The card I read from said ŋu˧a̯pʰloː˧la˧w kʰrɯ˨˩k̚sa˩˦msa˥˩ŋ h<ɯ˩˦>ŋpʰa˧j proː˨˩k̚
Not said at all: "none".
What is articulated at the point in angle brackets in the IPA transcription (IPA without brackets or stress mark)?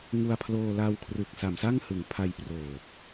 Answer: ɯ˩˦